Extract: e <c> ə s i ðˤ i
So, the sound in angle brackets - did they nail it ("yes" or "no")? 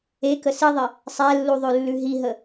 no